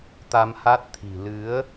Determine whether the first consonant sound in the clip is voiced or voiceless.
voiceless